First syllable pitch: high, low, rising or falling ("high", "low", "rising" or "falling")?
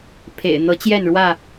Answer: low